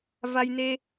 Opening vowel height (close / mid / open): open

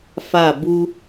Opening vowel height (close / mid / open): open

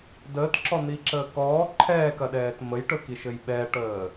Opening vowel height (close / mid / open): mid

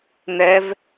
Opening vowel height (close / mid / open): mid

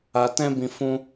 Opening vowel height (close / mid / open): open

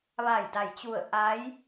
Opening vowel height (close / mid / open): open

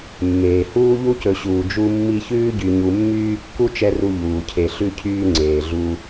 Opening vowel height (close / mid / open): mid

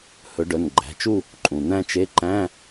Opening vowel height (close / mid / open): mid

